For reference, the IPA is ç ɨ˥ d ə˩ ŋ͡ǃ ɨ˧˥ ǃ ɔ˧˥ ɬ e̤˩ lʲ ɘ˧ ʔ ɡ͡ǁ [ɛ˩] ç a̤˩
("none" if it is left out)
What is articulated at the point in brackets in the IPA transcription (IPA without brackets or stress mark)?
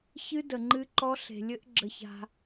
ə˩